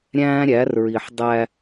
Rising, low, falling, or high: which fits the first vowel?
high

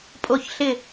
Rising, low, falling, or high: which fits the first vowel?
falling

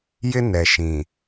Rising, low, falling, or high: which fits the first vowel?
high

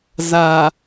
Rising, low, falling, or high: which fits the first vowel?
low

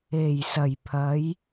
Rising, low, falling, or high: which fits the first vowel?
low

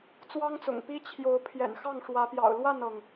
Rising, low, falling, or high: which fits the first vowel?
high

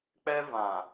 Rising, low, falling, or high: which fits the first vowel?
high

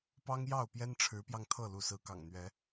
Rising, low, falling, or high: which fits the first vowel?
high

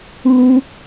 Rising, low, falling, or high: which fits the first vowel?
high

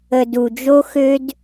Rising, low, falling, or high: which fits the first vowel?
low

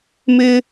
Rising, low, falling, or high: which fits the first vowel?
high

